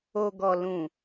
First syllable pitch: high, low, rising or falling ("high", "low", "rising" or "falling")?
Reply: low